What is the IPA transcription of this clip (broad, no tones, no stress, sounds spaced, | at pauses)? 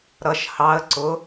ɾ ʌ ʃ h ɑ ə̯ ǀ ʊ